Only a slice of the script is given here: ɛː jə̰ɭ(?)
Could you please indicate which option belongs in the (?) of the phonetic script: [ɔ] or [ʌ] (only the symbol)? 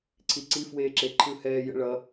ʌ